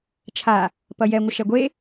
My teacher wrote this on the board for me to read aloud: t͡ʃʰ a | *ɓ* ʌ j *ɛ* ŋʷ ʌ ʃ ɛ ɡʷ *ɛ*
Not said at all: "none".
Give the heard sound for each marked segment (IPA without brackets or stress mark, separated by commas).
p, ɛ, e